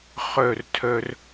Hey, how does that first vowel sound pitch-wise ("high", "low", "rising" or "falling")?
falling